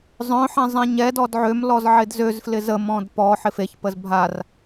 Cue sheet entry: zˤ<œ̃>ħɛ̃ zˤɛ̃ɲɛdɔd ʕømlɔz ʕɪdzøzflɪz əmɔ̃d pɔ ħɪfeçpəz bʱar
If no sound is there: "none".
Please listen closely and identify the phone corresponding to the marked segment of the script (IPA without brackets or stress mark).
œ̃